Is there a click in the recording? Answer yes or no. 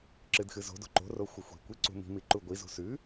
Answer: yes